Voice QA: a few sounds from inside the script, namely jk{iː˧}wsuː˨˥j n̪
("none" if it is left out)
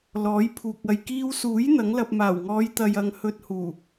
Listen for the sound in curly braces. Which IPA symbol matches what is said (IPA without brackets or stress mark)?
iː˧